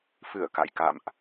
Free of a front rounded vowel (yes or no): yes